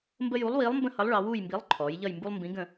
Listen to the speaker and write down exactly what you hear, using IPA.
mbə˦ju˨˥lˠwiː˨˥lˠmbə̃˦ hʌ˨˥lˠɭɑ˩˧ wuː˦˨jmbi˨˥lˠǃʰɔː˩˧j ʎʌ˦˨jmbu˦lˠmbĩ˨˥ ɡə̃˦˨

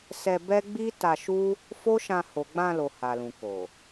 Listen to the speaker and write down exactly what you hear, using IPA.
sɛ˧bɛ˦ ɡ͡bi˦ta˧ʃu˦ | fo˦ʃã˧ ho˨ɡ͡bã˧lo˨ ha˨lũ˨ko˨

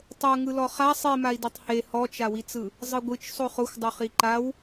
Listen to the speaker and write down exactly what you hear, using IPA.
tˤɤŋɯlɔ χa sˤimai̯dɛtˤ he hɔt͡ʃawit͡sɯ | zˤɯɡʷɯt͡ʃ sˤoχoxʷdˤo χiǃaw

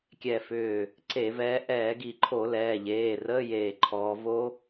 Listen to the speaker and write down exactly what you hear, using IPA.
kʲɛ˧˩fʏː˧˩ | ǀe˧˩˧vɛː˨˦ ʔɛː˧˩˧ɡi˧˩˧ǃʰo˧˩˧ lɛː˩˧˩ʎeː˩˧˩rəː˧˥˧ jeː˧˩ǃʰɔː˨˦ vo˦˥

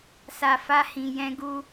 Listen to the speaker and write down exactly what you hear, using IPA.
sa˧ fa˧hĩ˨ jɛ̃˧ɡu˧

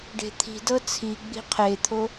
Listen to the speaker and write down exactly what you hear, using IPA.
ɖe̤t̪ʰi̤dɤ t͡sʰiɡ͡bi̤ qʰet̪ʰo

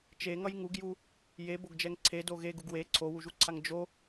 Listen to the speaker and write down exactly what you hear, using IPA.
t͡ʃeŋʌj ŋuɡju | jeboɡd͡ʒɛŋ ǀʰedo ɣeɡuɡ we ǀʰowuʒuǀʰaŋ d͡ʒo

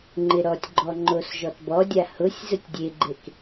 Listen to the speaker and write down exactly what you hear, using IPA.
ŋ͡ǃɪɾɔtʲɡ͡ǃɔ ŋ͡ǃosʒɔtbɔdʲa hʊsʲ zʊtʲdʲeɡ͡ǃek

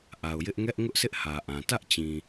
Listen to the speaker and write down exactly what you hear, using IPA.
ʔa˨ʊ̯jɪ˦ʔ ŋɛ˦ʔ ŋʊ˦ʔsʰɪ˦ʔ hä˨ʔã˨ tä˦ʔt͡ɕĩ˨

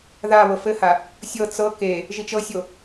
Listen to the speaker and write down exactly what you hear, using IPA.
ða βɤfɘha | sʲɤ t͡sɤ ke | ʒit͡ʃɤsʲo

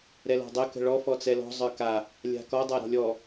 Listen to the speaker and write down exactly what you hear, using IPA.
ɾɛlɔ̤dˤə kə̤ɭɔ fɔt͡sɛlɔ̤ zˤə˞ka | lʲa̤kɔ dˤaɾɔ̤lʲɔ

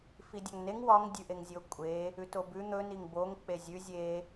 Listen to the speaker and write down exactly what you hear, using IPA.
fidʲɒŋneŋ wɒŋ dʲʉʔeŋzʲokʷʼe | ʉtobʉ n̪ɵ niŋboŋ k͡pezʲʉ zʲe

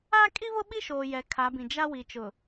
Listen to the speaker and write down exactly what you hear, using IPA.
aː˦kʼi˦βʊ˦ ɓi˦ʃoː˨ jɛ˨˦kʰa˨˦bĩ˨ d͡ʒa˦wi˨ t͡ʃʊ˨

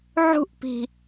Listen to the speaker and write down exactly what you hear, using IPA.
ʕṳʔpi̤

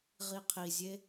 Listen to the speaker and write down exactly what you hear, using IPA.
ʁiqʰizʲe

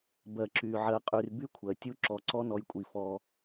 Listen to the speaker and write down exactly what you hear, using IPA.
bɜ˨ǁy˨ ʕɜ˨qʼy˨r by˦kʷʰɜ˨tʲu˦ ǁɔ˨ǀɔ˦ nɔ˦jkʷʼi˦˨ fɔ˦

